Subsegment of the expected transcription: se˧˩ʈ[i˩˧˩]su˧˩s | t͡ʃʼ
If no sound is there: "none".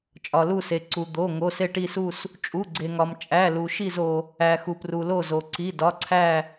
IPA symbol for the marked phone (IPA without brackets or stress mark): i˧˩